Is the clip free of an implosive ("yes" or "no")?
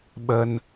no